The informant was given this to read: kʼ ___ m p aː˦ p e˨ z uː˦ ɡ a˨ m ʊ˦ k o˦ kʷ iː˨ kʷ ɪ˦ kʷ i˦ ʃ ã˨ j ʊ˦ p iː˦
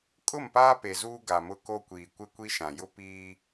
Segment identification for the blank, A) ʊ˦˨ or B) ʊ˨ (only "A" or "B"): A